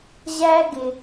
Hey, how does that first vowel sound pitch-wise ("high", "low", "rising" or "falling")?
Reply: high